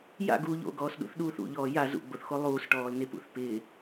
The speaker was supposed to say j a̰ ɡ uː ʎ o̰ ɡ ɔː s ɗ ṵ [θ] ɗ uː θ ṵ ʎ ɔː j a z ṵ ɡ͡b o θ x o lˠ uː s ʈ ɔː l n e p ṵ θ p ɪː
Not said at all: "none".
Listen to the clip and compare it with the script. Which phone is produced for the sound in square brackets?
θ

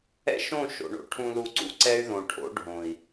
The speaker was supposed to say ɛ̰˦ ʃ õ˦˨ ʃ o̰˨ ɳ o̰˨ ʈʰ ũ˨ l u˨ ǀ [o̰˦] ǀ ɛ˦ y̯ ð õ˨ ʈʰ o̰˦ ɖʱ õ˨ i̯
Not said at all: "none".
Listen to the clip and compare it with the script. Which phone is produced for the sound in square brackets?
ṵ˦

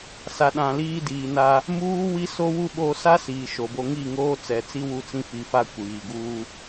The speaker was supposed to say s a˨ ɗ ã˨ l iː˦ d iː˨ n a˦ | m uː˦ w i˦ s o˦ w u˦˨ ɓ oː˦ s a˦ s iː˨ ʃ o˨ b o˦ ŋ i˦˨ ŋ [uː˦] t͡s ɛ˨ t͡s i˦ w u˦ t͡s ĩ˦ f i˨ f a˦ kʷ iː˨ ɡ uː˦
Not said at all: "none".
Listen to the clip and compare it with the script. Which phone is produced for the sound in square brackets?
oː˦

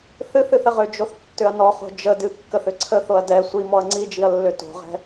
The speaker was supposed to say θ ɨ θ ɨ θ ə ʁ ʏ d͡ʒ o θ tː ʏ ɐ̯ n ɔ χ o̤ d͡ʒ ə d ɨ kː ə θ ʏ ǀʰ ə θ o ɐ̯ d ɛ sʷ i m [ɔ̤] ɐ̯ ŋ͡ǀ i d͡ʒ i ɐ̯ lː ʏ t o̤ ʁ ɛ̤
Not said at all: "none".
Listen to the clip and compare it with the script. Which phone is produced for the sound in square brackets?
ɔ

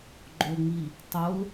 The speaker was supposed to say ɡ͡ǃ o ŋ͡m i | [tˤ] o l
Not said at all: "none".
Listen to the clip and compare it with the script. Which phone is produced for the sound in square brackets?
tˤ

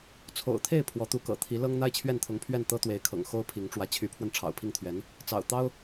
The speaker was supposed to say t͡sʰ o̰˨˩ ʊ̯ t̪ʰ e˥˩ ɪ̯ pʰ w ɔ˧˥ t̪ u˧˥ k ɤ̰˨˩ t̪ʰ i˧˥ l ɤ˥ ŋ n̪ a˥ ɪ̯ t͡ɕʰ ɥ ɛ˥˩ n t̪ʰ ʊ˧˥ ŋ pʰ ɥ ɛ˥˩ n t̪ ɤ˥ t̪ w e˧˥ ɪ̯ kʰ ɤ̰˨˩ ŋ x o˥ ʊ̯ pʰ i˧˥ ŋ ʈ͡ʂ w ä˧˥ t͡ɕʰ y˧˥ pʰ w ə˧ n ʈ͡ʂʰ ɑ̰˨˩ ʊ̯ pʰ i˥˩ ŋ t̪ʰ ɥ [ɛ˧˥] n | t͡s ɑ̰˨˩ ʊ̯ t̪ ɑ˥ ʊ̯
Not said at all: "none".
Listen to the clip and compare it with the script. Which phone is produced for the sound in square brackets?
ɛ˧˥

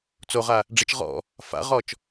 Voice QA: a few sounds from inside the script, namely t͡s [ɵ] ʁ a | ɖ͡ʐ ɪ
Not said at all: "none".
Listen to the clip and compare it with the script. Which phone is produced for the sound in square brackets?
o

